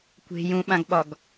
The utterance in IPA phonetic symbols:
kʷ e̤ j ũ ɓ ã ɡ ɓ ɒ ɡ

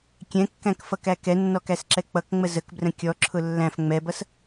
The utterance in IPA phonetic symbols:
kʲ ɛ̃ kː æ̃ k f ʌ k æ k ɛ nː ɔ k æ s ǁ ɛ k͡p ʌ k ŋ͡m ə z ə k b r ə̃ kʲ ɔ ǁʰ ʊ lː æ̃ f ŋ͡m ɛ b ʌ s

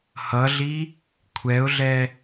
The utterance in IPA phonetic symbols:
h ʌ ɮ i | kʷʰ ɛ ʊ̯ ɮ ɛ

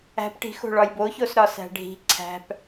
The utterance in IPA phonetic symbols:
æ̤ p ʈ i̤ x o̤ ɭ ɒ j b o ç o s ɾ ɒ s æ̤ ɖʱ i̤ ǀʰ æ̤ p

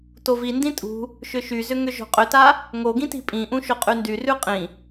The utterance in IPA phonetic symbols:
t o v i n d ĩ tʼ ṳ | ʃ ʏ ʃ y z ʏ ŋ ʏ ʒ o̤ qʼ ʏ t a | ŋ o ɡ ĩ t i̤ pʼ ĩ ʔ ũ ʃ o qʼ y n d y r ʉ qʼ ĩ

